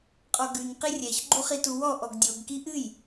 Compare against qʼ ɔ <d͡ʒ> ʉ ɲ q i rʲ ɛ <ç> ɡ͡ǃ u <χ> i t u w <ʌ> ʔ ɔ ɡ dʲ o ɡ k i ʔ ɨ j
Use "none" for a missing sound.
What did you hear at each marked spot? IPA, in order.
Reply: ɡ, ç, χ, ɔ

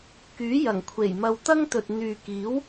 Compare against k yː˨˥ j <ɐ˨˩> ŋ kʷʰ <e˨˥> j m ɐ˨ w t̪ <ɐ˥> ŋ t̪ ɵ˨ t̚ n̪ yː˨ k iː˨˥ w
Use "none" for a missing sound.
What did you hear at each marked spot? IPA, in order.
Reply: ɐ˨˩, e˨˩, ɐ˥

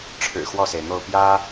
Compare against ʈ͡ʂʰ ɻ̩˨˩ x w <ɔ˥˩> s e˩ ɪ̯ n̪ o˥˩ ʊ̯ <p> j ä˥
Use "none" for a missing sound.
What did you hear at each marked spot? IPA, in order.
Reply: ɔ˥˩, p

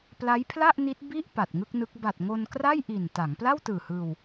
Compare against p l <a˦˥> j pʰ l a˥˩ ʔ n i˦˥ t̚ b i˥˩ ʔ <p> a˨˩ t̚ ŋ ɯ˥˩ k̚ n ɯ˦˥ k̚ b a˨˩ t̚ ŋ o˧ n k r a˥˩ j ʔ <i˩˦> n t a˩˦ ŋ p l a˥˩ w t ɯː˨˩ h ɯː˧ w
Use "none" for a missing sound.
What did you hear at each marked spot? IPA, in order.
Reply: a˦˥, p, i˨˩

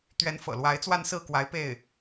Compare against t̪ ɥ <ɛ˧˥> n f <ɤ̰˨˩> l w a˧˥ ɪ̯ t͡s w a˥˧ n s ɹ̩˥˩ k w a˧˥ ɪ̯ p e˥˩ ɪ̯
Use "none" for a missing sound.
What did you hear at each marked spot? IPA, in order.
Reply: ɛ˧˥, ɤ̰˨˩

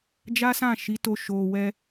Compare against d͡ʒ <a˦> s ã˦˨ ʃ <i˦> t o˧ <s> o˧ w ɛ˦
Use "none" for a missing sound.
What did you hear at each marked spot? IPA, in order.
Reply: a˦, i˨˦, ʃ

